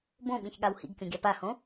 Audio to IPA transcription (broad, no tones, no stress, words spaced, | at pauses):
bõɓĩçɠaw hḭɡkʲõɡʲa pahõ